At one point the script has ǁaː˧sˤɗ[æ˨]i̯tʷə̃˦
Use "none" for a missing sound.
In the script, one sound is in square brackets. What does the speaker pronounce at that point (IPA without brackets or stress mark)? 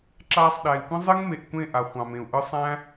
æ˨